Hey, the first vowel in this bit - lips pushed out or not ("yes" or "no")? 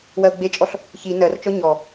no